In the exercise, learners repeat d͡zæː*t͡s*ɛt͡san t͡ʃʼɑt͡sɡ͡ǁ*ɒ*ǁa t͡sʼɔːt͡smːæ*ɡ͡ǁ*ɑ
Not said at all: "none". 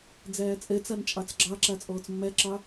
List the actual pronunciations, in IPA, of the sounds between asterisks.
t͡sʼ, ɑ, ǁ

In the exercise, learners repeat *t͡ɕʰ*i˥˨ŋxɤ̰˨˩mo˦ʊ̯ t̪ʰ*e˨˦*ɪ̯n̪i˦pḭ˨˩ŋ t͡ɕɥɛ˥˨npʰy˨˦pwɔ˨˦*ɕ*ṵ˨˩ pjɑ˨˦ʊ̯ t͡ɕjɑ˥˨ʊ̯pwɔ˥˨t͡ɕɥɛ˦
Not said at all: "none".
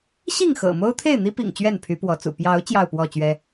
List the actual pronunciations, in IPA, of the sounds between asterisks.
ɕ, e˥˨, t͡s

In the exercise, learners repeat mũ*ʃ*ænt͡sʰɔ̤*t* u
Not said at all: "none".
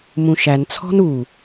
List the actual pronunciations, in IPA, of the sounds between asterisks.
ʃ, n

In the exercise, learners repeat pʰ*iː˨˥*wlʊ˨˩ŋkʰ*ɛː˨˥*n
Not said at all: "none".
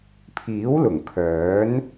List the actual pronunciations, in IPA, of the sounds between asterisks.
iː˨˥, œː˨˥

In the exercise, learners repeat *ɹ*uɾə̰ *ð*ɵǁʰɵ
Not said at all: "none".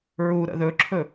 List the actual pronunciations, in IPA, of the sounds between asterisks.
ɹ, ð

